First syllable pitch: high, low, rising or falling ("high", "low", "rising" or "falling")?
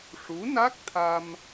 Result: rising